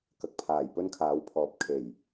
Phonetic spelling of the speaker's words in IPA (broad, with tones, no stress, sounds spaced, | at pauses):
k ɐ˨ k̚ pʰ aː˨˩ j p ɵ˥ n kʰ aː˨˥ w pʰ ɔː˨˥ p̚ kʰ e˨˩ j